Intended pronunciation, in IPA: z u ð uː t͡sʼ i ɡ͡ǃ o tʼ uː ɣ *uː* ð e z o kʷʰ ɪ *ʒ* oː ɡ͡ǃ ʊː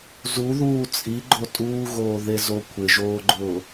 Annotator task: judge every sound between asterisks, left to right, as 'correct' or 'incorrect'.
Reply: incorrect, correct

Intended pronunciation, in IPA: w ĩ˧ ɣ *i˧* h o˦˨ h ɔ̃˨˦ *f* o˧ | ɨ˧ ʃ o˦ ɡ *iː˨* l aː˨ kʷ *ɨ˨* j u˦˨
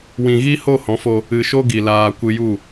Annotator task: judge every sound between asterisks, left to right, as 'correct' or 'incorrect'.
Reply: incorrect, correct, incorrect, incorrect

